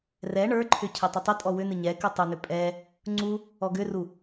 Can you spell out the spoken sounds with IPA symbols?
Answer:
rɛ ɳə˞ǃʰʏ cʰɛtˤətˤətʼɔ wʏnɨ ɲɛ kɨtˤʏnʏ pʼɛ | ŋ͡ǀu | ɔɡʏru

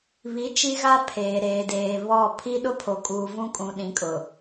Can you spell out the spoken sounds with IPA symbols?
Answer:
βi˨˦ t͡ʃi˦ɣa˦ pʰeː˨ɾeː˨deː˨ βɔ˦˨ pʰi˦ɗʊ˦pʰo˨kʼuː˨ vũ˦kʼũ˨ɗĩ˨˦ kʼʊ˨

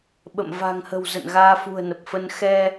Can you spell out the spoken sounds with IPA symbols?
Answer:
ɓə̰˧˨m va̤˨˩ŋhə̤˨˩wzə̰˧˨n ɣaː˧fṳ˨˩ə̯nə˨˩p̚fə˧n xɛ˧

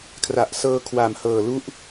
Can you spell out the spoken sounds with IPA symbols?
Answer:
kʰra˨˩ʔ sɤː˧ kʰwa˨˩m hɤː˨˩lu˦˥ʔ

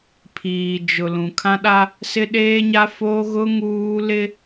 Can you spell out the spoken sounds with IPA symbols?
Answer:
pʰiː˨d͡ʒʊ˨ lũ˨kʰã˦ɗa˦ | sɪ˦ɗeː˦ɲa˦foː˦ ɣʊ˦ ŋuː˦lɪ˦

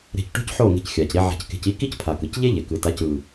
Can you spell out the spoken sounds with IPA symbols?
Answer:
ɾe̤˧cʈo̤˦cħo˦˨ ŋe̤˧cxʲa˨cɾi˧ ʕa̤˧cke̤˧ci˦ ki˦c pʰa˨kɯ˨c ʎe˦ʎe˨kɯ˨ta˨˦c ɯ˨

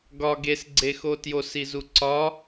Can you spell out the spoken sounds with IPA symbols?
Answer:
ɡɒ ɡesɡ͡ǀexo tjosizu ǀɒ

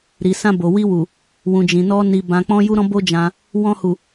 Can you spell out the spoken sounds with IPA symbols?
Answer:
ɾi˨sã˧ bo˨wi˧wu˨ | wũ˨d͡ʒĩ˨nɔ˧ ni˨ bã˧k͡pɔ̃˦ju˦ ɾɔ̃˦bo˦d͡ʒã˧ | wɔ̃˧hu˨

